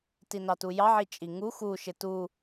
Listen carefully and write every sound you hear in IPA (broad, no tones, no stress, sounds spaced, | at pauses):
t i n ɑ t u j ɑ ʕ i t͡ʃʼ i ŋ u x u ʃ ɪ t u